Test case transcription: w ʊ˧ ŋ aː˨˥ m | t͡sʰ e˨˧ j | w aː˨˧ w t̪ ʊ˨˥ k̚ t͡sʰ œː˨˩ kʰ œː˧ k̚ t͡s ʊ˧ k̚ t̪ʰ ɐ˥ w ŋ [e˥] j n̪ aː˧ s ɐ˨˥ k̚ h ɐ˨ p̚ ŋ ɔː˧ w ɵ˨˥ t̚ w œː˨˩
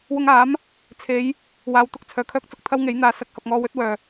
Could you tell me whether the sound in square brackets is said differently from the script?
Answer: yes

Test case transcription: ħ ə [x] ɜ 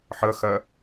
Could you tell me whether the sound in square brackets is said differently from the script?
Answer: no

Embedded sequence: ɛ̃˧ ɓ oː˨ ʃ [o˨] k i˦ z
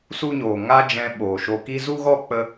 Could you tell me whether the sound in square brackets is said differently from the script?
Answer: yes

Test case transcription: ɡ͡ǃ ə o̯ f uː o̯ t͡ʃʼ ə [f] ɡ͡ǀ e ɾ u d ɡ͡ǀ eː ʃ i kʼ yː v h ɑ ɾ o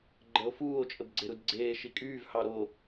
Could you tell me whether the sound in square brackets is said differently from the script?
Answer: yes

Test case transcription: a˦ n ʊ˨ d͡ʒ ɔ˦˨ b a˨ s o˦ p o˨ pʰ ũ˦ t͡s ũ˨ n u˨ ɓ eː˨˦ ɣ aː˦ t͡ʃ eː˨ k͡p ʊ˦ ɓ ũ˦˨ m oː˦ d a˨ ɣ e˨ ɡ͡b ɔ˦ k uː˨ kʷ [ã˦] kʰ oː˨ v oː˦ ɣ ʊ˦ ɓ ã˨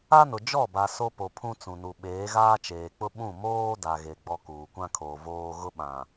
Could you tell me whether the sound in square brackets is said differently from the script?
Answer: no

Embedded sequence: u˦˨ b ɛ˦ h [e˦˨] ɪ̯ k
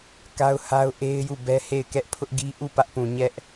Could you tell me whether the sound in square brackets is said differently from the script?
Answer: no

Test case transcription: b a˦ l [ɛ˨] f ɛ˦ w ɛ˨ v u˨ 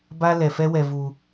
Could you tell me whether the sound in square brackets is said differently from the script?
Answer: no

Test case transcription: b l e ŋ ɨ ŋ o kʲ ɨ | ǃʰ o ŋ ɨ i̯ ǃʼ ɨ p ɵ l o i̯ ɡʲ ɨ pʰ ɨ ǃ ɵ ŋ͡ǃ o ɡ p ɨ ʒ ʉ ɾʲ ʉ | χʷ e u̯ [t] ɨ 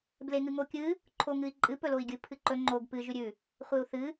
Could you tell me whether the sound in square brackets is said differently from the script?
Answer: yes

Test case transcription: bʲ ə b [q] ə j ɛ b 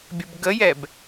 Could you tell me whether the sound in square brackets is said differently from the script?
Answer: yes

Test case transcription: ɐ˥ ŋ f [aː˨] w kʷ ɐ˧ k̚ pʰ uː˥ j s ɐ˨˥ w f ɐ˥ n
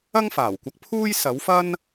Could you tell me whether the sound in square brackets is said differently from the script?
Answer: yes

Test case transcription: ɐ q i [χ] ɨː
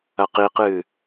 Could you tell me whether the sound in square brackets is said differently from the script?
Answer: yes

